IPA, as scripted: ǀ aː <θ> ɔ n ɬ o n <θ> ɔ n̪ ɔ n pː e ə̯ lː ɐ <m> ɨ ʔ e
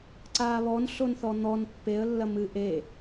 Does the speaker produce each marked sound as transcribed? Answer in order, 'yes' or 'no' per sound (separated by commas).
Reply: no, yes, yes